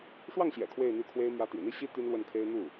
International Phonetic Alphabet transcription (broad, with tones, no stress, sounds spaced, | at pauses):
ʂ w ɑ˥˩ ŋ ɕ j ɛ̰˨˩ kʰ w e˥˧ ɪ̯ n̪ y˥˩ kʰ w e˥ ɪ̯ m j ä˧˥ t̪ ḭ˨˩ n̪ i˥˩ ɕ i˥ t̪ y˥ n l w ə˥˩ n kʰ e˥ ɪ̯ n̪ u˥˩